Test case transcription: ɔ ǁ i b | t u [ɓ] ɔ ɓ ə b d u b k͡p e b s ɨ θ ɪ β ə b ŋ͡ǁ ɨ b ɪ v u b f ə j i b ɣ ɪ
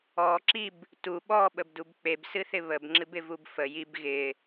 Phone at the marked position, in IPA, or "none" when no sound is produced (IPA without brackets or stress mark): ɓ